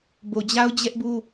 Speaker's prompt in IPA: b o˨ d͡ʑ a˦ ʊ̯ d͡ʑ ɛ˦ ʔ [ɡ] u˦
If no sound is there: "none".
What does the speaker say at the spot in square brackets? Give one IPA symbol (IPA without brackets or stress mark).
b